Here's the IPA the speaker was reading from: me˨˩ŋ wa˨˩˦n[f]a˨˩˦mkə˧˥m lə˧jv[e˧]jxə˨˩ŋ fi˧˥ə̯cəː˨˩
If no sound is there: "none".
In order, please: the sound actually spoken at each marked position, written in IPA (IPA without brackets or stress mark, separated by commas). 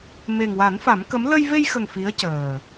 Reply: f, e˧